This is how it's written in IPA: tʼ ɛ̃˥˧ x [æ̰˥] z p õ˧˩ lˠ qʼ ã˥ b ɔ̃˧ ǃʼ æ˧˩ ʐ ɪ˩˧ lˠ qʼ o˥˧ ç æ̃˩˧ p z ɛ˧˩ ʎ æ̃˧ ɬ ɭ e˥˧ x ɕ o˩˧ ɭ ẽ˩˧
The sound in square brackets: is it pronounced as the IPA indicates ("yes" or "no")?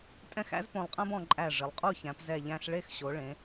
yes